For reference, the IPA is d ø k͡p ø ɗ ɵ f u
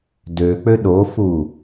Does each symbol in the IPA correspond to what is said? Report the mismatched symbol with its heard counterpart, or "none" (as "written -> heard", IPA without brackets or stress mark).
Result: ɵ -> o